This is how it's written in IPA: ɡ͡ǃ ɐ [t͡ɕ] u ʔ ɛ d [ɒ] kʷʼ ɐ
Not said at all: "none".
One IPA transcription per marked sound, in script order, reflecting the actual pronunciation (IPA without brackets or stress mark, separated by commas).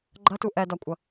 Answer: t, ɒ